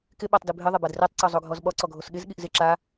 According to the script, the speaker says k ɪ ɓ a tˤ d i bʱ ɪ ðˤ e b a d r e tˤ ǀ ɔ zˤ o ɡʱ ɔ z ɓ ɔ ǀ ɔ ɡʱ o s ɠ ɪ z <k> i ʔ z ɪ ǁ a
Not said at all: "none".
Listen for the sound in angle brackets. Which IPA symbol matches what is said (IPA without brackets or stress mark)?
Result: ɠ